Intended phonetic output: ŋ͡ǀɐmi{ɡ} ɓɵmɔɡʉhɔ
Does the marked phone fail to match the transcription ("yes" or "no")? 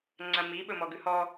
yes